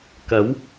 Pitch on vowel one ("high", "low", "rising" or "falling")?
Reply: rising